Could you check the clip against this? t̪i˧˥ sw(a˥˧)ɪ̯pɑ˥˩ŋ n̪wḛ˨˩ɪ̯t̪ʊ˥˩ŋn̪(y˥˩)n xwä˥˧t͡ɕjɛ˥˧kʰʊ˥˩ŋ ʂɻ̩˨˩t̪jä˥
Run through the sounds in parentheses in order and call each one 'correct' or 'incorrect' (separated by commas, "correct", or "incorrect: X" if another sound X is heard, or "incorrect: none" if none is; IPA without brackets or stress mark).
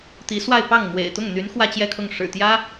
correct, incorrect: y˧˥